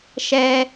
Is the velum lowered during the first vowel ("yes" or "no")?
no